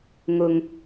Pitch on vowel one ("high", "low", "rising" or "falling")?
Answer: low